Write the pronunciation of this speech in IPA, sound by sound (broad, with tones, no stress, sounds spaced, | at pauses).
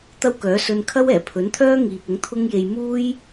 t̪ ɐ˥ w k œː˨˥ s ɵ˧ n kʰ ɐ˥ w ɛː˨˩ pʰ ɵ˨˥ n t̪ʰ œː˥ ŋ iː˨ p̚ ʊ˨˥ ŋ t̪ʰ ʊ˥ ŋ j e˧ j m uː˥ j